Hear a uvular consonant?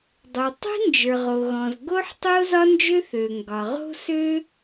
yes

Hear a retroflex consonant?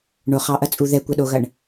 yes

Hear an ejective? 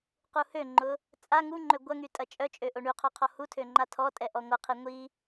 yes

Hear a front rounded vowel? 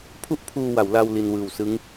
no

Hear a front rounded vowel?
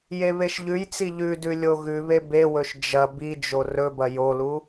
no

